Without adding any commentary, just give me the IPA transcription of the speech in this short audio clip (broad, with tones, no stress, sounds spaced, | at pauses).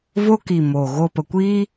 v o˦ k i˨ m o˨ ɣ o˧ p ə˨ kʷ iː˦